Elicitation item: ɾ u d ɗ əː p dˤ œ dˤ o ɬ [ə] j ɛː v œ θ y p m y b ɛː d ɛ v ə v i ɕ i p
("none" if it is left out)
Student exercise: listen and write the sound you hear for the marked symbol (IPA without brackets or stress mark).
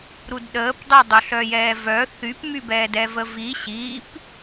œ